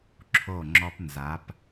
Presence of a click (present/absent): present